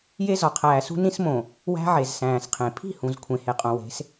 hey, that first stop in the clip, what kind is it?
aspirated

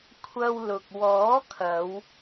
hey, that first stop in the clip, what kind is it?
aspirated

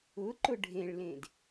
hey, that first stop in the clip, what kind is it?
click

